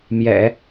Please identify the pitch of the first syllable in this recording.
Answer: low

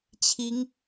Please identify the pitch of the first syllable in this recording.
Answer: rising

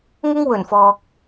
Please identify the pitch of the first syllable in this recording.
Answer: high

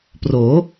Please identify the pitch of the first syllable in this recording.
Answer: rising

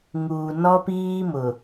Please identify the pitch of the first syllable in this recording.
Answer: low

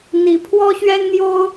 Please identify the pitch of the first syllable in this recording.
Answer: rising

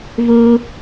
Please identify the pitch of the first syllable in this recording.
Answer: high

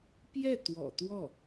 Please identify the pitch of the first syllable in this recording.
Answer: falling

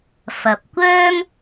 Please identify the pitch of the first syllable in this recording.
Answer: low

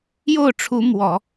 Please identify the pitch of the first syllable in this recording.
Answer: falling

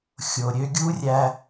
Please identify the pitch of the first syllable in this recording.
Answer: low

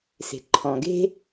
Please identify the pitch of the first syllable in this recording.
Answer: low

